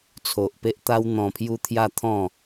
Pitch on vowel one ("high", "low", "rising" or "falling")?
low